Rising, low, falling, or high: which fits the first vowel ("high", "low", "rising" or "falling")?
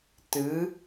rising